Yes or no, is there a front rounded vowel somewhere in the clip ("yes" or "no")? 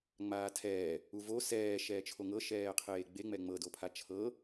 no